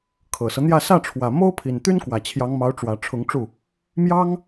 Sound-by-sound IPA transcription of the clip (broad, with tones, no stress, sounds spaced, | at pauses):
kʰ ɤ˨˩ s ɤ˦ n̪ j ä˥˧ s ä˥˩ ʈ͡ʂʰ w ä˨˩ m o˥ ʊ̯ pʰ i˨˩ n t̪ y˥ n k w ä˨˩ t͡ɕʰ j ɑ˧˥ ŋ m ɑ˧˥ ʊ̯ ʈ͡ʂ w ä˨˩ ʈ͡ʂʰ ʊ˧˥ ŋ ʈ͡ʂ u˥˩ | m j ɑ˥ ŋ